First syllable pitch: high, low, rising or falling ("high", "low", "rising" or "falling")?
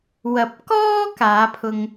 low